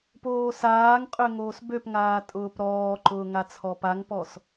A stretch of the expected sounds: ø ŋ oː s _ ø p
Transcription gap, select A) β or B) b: B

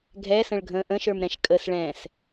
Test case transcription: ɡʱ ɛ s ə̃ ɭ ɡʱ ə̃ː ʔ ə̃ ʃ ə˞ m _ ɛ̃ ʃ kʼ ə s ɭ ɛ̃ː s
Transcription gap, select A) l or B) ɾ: B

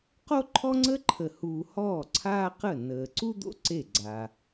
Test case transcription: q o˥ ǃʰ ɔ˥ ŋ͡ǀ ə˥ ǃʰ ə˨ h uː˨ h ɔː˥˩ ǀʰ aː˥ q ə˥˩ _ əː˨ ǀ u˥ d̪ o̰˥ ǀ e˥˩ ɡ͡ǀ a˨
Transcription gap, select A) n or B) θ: A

